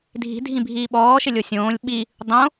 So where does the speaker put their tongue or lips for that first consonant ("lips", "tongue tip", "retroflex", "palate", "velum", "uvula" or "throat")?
tongue tip